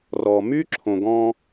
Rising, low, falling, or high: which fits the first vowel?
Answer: low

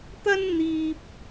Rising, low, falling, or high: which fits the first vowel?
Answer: high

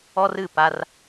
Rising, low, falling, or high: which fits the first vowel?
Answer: high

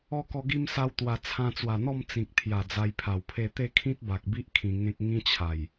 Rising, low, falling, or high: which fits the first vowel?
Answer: high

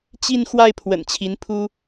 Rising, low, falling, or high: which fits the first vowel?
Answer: falling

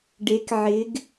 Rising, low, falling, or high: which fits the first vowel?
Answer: rising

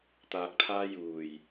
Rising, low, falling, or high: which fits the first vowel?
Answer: low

